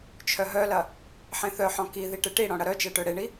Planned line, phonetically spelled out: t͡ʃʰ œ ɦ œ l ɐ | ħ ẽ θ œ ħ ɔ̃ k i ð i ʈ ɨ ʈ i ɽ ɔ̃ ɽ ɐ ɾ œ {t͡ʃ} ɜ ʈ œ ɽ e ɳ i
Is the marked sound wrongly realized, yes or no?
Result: no